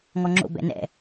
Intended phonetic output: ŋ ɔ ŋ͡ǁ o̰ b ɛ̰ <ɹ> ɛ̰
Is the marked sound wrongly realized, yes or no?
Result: yes